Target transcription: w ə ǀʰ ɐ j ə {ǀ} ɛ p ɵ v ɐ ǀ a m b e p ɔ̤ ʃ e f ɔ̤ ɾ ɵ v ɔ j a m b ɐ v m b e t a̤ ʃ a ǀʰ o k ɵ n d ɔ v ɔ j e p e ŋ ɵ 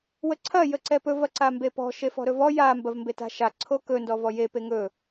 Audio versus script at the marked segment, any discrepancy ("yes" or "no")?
no